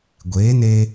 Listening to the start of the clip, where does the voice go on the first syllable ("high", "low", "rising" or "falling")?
rising